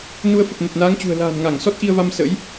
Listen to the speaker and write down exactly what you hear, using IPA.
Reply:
n u˧ ə̯ f ə˨˩ p̚ n ə˨˩ t̚ n aː˨˦ ŋ t͡ɕ ṳ˨˩ ə̯ l a̤ː˨˩ n ŋ a˧˩ ŋ s ɔ˦˥ t̚ ʔ i˧ ə̯ v a˧ m s ə̰˧˥ j

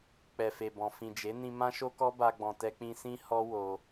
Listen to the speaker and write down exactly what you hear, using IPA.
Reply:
k͡p ɛ˨ f e˨ b ɔ̃˨ f ĩ˨ d͡ʒ e˨˦ n ĩ˧ m ã˦ ʃ o˦ k ɔ˦ b a˧ ɡ͡b ɔ̃˨ t ɛ˧ k͡p ĩ˧ s ĩ˦ h ɔ˦ w o˧

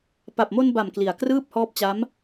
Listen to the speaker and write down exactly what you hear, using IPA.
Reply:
p a˨˩ p̚ m o˧ n b a˨˩ m k l i˨˩ a̯ k r ɯː˥˩ p̚ h ɔː˦˥ p̚ t͡ɕ a˦˥ m

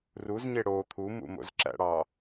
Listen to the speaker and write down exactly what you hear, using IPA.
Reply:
r u z ɲ e ɽ o t̪ʰ u m ṵ m o̰ z ǁ æ̰ ɽ ɑː

